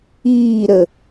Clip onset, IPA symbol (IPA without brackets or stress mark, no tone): iː